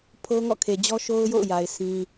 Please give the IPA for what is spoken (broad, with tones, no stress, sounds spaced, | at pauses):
pʰ o˦ ŋ ɔ̰˦˨ kʰ e˨ d͡ʑ ɔ˦ ʃ o˦ ʊ̯ j o̰˦˨ ʊ̯ j a˨ ɪ̯ sʰ ĩ˦